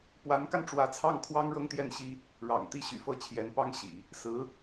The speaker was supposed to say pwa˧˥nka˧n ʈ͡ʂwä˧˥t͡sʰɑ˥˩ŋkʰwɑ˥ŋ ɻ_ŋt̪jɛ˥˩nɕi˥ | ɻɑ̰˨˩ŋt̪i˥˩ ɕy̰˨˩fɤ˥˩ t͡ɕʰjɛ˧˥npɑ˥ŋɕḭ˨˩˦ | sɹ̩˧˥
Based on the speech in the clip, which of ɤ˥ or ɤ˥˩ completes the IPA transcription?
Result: ɤ˥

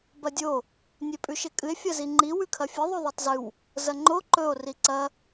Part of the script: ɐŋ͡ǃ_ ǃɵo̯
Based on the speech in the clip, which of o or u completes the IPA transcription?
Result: o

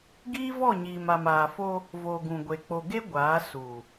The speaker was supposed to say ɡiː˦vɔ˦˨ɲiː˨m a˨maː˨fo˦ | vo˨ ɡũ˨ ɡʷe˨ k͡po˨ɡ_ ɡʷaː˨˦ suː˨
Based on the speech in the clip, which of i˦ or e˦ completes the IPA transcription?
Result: e˦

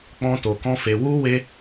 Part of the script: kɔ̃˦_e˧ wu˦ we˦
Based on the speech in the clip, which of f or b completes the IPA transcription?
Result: f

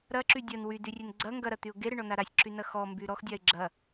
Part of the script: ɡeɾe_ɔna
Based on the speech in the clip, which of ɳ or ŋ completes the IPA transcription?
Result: ɳ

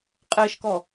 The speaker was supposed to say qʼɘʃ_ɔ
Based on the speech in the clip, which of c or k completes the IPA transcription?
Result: k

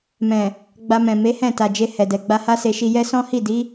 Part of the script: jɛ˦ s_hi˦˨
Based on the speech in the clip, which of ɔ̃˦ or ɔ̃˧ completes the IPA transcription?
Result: ɔ̃˦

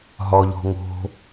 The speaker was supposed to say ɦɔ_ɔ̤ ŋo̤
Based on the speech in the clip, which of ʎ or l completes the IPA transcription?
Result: ʎ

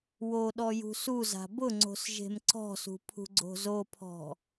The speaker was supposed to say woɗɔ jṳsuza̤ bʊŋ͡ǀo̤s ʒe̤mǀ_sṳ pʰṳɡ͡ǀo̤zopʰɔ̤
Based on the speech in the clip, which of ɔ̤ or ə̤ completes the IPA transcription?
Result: ɔ̤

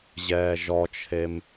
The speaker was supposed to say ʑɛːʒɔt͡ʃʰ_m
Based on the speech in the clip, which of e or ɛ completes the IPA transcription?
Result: e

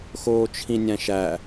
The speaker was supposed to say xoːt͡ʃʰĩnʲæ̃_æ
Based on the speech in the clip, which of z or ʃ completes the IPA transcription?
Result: ʃ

